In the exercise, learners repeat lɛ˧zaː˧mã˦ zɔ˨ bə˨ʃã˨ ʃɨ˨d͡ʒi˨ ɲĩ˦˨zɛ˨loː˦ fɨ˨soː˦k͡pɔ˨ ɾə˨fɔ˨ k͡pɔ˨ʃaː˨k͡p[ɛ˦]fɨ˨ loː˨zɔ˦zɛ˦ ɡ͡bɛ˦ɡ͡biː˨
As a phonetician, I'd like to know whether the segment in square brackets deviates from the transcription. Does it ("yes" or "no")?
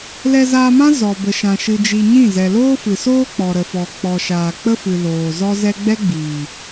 yes